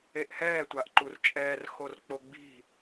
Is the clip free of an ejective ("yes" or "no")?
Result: no